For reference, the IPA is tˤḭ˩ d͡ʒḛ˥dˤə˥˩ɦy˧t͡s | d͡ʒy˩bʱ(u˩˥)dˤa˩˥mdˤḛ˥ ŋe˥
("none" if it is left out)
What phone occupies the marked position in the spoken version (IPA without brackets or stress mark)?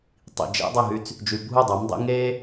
u˥˩